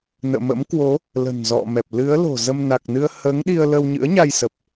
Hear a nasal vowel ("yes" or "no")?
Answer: no